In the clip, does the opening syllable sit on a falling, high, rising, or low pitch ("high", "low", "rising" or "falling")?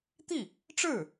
falling